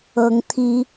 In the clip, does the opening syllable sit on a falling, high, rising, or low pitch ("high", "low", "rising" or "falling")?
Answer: rising